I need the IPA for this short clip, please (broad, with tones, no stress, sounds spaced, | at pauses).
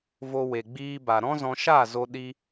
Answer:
v o˧ w e˨ ɡ͡b iː˧ b a˨ ɾ ɔ̃˦ z ɔ̃˧ ʃ a˦˨ z o˧ ɗ i˧